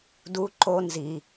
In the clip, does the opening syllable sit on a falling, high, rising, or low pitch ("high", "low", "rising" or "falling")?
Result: high